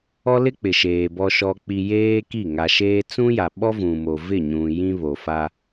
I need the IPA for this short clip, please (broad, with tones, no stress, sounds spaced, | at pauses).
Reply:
ɔ˦ l ɪ˦ k͡p ɪ˨ ʃ eː˨ b ɔ˨ ʃ ɔ˨ k͡p i˨ j eː˦ k i˦˨ ŋ a˨ ʃ eː˦ t͡s ũ˦ j a˨ ɓ ɔ˦ v ũ˨ m o˨ v ɪ˦˨ ɲ ũ˨ j ĩ˦ β o˨ f a˦